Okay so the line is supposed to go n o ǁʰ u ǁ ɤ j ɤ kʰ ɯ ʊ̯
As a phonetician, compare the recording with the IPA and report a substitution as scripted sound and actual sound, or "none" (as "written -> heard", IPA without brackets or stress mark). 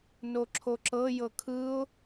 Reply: u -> o